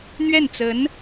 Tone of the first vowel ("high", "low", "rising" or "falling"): falling